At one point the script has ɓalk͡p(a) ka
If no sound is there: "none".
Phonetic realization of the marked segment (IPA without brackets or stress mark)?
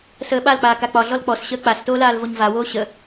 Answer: aː